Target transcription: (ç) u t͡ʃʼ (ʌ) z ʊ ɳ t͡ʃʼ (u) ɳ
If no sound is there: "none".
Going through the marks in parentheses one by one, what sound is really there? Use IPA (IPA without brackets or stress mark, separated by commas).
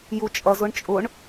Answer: j, ʌ, ʊ